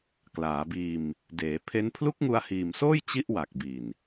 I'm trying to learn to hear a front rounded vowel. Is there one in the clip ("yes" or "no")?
no